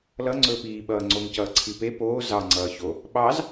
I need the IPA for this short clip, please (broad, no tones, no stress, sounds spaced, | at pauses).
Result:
l ʌ ŋ͡ǀ ɵː p iː ɓ ʌː ŋ͡ǀ o ŋ c ʌː ǀʰ i p e p oː z ɑ ŋ͡ǀ ʌː ç o | ɓ ɑ z